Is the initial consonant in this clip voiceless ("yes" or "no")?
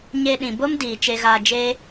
no